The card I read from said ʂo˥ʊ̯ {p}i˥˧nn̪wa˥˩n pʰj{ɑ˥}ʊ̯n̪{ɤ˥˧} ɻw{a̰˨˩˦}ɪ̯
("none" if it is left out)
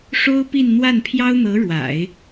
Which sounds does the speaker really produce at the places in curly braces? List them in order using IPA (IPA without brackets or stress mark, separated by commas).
p, ɑ˥, ɤ˧˥, a̰˨˩˦